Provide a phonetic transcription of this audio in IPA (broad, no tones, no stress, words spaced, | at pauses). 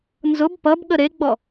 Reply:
nzʊb pʌb ɠəɾeɡ͡bɔ